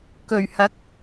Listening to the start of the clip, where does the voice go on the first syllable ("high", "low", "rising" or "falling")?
low